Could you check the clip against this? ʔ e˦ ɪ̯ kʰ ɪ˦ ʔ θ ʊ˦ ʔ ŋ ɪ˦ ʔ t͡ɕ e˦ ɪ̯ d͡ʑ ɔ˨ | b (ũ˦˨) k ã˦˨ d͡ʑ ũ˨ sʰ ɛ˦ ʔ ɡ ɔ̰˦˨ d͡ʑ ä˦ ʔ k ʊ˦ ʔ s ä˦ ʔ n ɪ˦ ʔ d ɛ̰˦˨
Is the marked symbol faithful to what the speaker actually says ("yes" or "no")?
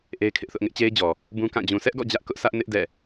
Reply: no